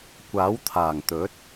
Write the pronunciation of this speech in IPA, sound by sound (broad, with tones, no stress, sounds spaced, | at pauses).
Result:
kʷ aː˨˥ w t̪ʰ aː˨˩ ŋ t̪ ɵ˨˥ t̚